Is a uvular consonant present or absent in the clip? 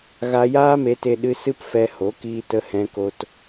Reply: absent